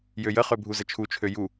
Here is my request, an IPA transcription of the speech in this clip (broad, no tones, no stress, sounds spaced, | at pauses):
j ø j ə χ ø bʱ u z ə t͡ʃʰ u t͡ʃʰ ø j u